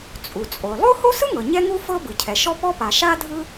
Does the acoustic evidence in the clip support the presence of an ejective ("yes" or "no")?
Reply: yes